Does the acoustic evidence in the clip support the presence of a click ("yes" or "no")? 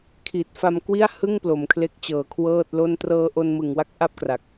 no